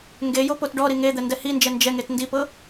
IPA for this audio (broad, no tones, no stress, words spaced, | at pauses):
ŋɡejopot ɖɔɾi ŋed̪ɛndɛ hind͡ʒɛ nd͡ʒɛŋet ndipɤ